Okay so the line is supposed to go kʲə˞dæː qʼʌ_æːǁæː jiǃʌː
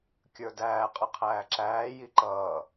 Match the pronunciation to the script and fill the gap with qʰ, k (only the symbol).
qʰ